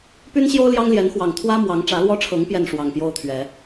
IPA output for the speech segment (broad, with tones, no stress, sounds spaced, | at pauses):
p y˦ n ɕ j o˦ ʊ̯ l j ɑ˦ ŋ l j ɛ˨˦ n x w ɑ˨˩ ŋ t̪ʰ w ä˦ m w ɑ˨˦ ŋ ʈ͡ʂ ä˨˦ l w ɔ˦ ʈ͡ʂʰ ɤ˨˦ ŋ p j ɛ˥˨ n ʂ w ɑ˨˩ ŋ p j o˦ ʊ̯ t̪ʰ ɥ ɛ˨˦